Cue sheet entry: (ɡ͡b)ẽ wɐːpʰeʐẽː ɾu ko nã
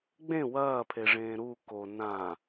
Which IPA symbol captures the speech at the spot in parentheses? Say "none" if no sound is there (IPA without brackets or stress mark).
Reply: ɡ͡b